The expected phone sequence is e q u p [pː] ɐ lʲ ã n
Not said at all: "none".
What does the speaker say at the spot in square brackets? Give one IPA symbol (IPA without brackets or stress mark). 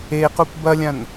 b